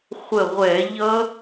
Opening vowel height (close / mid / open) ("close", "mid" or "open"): mid